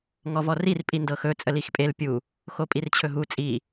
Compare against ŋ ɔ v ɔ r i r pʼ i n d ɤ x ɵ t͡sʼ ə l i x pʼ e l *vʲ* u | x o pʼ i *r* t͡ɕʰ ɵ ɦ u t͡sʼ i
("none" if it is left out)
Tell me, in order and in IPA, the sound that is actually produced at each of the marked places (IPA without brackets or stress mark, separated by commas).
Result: pʲ, r